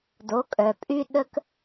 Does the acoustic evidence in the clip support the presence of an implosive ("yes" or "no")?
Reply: yes